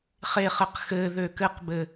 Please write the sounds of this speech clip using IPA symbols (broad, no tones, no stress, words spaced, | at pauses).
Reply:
χeχɘq xɘ ðøkɘqbɘ